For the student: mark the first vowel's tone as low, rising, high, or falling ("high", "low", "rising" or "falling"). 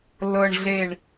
low